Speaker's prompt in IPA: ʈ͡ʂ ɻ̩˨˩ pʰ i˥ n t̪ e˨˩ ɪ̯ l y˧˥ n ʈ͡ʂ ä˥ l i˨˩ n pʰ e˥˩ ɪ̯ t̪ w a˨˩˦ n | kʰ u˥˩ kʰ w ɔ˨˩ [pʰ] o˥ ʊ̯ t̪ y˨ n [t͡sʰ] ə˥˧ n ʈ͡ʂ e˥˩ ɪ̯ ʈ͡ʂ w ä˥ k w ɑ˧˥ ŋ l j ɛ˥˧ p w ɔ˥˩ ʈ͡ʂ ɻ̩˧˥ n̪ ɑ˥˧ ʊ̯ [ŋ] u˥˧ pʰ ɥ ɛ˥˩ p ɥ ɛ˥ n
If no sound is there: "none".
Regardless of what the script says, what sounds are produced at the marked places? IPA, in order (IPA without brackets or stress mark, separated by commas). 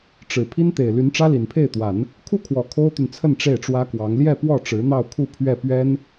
kʰ, t͡sʰ, kʰ